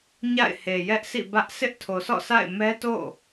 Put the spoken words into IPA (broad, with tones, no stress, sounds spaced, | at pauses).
ɲ a̰˦˨ ɪ̯ h e˨ j ɛ˦ ʔ s ḭ˦˨ b ä˦ ʔ sʰ ɪ˦ ʔ tʰ o˨ sʰ ɔ̰˦˨ s a̰˦˨ ɪ̯ m ɛ˦ t o̰˦˨